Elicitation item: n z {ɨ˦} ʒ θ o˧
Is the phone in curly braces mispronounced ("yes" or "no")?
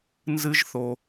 no